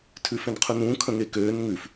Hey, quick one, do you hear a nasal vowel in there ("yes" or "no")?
yes